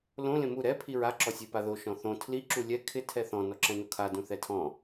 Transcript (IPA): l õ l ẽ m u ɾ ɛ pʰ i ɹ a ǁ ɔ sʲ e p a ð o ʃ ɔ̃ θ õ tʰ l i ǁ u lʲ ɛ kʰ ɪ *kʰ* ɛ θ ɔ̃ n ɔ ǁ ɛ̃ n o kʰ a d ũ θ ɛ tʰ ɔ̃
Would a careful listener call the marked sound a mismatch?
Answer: yes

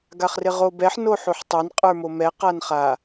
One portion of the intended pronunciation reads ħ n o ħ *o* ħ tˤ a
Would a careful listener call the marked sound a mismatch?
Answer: no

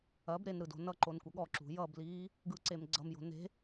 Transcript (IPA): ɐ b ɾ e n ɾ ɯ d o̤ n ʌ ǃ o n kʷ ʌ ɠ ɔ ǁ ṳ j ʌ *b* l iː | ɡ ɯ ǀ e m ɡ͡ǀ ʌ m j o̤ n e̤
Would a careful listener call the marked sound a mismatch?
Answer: no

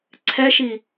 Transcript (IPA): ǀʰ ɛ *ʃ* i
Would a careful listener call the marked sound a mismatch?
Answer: no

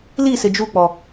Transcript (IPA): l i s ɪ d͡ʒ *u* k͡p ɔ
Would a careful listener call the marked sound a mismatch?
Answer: no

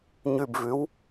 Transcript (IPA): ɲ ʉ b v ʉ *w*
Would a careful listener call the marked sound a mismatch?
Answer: no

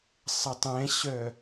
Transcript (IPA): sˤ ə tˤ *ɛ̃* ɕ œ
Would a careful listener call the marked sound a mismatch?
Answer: no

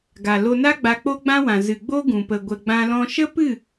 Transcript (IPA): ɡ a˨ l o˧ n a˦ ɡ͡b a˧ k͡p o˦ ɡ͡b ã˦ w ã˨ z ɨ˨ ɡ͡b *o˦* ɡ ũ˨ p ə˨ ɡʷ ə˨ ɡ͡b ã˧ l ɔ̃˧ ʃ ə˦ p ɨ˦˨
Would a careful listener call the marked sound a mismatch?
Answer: no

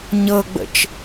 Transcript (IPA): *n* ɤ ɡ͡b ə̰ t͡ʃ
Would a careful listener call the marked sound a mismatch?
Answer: yes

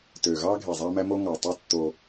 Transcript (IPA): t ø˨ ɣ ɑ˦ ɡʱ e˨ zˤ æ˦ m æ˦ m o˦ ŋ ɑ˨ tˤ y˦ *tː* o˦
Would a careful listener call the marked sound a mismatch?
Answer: no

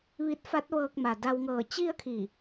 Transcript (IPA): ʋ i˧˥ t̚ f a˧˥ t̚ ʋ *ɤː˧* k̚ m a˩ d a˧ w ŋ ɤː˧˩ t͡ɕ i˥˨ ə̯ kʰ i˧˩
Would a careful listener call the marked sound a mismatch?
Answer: no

